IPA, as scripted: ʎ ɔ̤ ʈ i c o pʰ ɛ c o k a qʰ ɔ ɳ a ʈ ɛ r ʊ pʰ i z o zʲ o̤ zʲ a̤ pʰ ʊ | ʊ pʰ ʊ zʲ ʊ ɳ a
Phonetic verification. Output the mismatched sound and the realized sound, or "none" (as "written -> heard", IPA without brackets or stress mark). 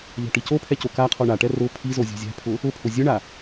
none